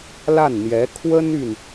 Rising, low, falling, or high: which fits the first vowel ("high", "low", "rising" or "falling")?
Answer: falling